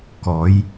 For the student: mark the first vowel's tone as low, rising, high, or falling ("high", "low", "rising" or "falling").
rising